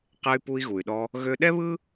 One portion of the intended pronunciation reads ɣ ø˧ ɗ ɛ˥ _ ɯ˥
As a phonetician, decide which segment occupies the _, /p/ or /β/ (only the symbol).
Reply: β